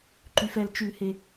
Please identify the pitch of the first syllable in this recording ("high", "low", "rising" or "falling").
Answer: low